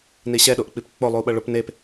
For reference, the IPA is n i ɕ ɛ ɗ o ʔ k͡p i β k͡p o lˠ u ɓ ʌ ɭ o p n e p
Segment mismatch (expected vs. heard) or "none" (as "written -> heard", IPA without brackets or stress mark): β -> p